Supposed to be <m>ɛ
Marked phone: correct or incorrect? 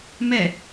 correct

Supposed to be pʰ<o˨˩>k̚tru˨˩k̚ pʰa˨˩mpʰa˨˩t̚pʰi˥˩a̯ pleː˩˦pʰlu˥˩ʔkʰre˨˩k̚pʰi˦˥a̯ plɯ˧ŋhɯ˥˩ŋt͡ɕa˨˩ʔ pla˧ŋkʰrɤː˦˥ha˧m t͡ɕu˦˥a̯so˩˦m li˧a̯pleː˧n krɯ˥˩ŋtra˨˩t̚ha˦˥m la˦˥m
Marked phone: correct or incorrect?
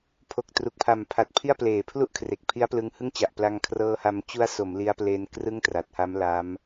correct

